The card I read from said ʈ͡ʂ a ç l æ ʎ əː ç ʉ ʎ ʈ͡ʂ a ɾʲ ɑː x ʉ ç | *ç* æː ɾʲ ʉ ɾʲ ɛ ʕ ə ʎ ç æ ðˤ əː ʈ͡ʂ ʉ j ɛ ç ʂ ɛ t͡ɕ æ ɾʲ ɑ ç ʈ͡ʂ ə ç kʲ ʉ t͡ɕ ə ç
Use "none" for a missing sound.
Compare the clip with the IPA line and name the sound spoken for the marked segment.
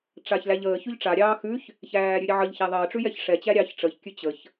ç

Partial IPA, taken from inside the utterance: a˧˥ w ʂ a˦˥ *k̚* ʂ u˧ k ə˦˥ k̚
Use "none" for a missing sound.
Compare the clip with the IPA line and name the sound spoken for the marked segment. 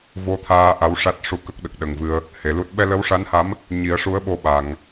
t̚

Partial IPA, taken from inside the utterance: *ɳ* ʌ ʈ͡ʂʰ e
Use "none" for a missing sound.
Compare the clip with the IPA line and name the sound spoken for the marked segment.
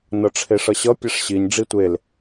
n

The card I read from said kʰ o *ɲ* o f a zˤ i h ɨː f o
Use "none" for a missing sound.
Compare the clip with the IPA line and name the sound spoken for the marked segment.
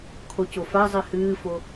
c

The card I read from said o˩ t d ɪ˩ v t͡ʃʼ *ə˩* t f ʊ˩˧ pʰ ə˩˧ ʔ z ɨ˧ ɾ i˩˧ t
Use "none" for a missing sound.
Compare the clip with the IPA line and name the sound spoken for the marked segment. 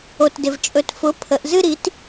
ɵ˩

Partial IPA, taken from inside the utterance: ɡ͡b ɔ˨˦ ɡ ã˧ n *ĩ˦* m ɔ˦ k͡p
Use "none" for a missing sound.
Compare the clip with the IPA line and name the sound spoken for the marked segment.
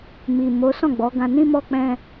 ĩ˦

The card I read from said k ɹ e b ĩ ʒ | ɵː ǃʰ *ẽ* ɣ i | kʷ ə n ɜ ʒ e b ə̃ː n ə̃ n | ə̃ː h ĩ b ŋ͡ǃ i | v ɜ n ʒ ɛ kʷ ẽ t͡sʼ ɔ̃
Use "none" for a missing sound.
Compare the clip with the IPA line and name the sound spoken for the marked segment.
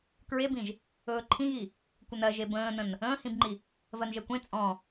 ĩ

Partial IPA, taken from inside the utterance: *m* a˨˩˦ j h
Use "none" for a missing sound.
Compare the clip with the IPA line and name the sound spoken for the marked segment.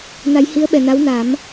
n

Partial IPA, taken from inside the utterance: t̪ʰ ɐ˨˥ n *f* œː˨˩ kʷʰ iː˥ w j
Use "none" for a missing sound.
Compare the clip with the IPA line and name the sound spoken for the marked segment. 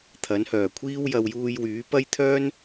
h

